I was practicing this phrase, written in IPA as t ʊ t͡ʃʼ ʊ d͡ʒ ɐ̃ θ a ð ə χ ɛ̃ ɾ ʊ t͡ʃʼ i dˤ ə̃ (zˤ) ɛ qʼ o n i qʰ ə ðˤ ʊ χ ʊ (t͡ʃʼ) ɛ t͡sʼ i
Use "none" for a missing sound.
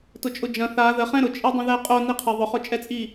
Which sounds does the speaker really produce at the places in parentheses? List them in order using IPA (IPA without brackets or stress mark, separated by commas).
ð, t͡ʃʼ